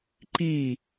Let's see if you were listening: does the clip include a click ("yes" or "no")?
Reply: yes